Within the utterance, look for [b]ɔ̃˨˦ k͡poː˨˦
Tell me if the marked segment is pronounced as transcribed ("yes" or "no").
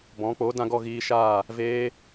yes